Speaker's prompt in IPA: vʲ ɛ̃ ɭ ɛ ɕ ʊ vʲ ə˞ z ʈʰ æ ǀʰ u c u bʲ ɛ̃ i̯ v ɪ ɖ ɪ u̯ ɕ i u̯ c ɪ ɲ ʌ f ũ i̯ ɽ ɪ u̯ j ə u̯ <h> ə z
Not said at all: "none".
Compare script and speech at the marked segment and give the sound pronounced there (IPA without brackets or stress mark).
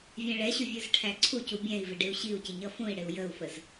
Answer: f